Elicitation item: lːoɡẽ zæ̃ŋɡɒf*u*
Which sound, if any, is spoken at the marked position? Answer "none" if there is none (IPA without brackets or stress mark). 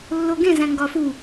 u